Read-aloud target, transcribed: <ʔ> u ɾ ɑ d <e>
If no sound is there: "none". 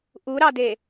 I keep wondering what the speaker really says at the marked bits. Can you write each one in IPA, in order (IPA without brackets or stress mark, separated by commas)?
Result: ʔ, e